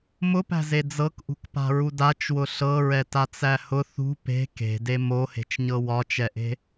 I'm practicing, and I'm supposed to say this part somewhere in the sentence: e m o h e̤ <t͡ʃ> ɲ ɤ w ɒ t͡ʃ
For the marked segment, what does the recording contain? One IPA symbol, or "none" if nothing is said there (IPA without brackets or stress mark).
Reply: t͡ʃ